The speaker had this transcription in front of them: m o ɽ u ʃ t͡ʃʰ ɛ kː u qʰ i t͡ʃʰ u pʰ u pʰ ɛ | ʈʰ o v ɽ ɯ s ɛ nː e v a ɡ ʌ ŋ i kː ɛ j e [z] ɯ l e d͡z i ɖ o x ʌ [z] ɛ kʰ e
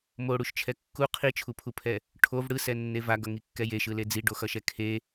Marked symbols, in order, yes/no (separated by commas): no, no